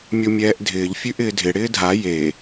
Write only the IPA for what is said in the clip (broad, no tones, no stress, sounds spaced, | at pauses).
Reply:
mʲ o mʲ ɛː ʔ dʱ ɪː ʎ fʲ ʉ ʔ ɪː dʱ ɪ ɽ ɪː dʱ a j e